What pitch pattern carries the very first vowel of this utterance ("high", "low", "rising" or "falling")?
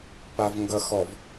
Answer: low